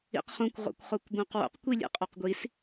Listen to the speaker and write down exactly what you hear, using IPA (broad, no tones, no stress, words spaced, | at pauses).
ḭqχũkʷ ʁo̰kʷχokʷbõqwo̰q kʷilʲḛqʼoqɡʷis